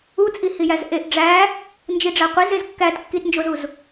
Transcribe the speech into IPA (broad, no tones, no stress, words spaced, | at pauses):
ut͡sʼihi jæzʔeʔ ɖ͡ʐæ | nd͡ʒiɖ͡ʐæqʷez ezkːæt kːitnd͡ʒozuz